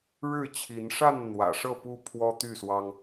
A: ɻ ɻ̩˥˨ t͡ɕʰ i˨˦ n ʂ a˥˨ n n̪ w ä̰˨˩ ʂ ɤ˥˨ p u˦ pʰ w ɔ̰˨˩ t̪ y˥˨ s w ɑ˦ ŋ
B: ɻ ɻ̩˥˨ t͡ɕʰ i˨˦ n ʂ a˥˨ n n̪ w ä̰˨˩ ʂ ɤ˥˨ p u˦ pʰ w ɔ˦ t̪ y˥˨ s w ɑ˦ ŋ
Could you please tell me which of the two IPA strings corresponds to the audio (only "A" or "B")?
B